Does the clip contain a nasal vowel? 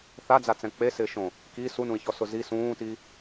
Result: yes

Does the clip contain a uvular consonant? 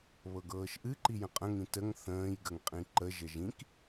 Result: yes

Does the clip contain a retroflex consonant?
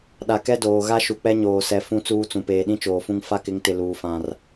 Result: no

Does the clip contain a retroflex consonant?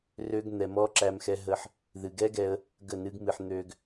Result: no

